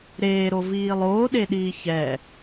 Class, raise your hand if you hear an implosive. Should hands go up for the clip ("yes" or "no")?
yes